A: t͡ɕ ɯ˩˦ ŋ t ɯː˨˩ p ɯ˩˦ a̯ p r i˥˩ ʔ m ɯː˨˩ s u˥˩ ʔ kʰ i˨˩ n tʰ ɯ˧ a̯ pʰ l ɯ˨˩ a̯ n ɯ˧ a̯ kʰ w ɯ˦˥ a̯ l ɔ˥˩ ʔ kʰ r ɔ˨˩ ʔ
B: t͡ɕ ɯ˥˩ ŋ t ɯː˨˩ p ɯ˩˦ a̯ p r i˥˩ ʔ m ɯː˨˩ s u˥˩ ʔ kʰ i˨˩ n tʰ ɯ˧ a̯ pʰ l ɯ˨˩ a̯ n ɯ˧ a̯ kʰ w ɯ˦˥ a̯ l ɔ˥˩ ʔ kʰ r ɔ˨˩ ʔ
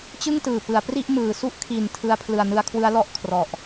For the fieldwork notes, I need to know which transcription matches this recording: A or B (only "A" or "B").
B